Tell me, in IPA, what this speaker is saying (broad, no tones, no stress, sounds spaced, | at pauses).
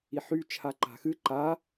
i ħ y t͡ʃʰ a ǃ a̤ x ɨ ǃ a